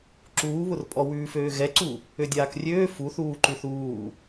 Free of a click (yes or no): no